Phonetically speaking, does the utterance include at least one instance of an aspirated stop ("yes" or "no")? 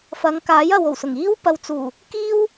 no